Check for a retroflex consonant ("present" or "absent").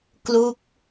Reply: absent